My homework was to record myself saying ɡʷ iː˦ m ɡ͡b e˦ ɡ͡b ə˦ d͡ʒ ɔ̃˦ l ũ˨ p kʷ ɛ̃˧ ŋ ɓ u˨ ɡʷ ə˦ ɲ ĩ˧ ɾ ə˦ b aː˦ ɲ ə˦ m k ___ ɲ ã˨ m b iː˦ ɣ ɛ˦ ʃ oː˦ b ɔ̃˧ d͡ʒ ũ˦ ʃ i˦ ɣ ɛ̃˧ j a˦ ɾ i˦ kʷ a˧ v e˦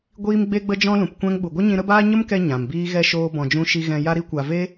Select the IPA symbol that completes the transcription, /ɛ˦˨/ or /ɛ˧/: ɛ˧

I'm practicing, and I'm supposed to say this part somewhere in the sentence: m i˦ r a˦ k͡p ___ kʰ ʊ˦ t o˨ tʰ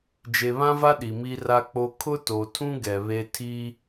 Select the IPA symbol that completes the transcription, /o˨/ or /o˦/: o˦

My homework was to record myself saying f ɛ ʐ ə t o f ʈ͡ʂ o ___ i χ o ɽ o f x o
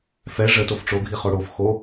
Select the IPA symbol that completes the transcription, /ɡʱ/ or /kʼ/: ɡʱ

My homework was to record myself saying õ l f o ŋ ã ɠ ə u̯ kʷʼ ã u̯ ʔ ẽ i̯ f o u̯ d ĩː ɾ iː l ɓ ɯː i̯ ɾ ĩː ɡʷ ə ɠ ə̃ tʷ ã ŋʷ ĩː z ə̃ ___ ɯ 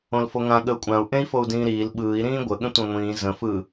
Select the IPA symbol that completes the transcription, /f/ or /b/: f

